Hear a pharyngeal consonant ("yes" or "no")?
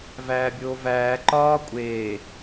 no